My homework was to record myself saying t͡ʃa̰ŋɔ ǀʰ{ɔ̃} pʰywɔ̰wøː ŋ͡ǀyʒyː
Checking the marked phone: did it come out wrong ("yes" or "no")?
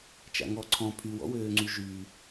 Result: no